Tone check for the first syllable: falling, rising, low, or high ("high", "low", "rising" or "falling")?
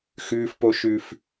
high